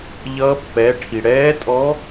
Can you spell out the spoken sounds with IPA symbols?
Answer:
ʎ ʌː˧˥ pː ɛː˩˥ ʈʰ i˩ ɽ ɛː˧˥ tʼ ɔ˧˥

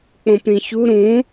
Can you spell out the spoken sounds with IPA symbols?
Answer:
k͡p õ p ɾ ĩ ç u ɾ ũ

